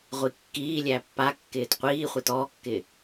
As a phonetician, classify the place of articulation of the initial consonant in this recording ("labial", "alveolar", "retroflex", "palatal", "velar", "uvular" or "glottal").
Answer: uvular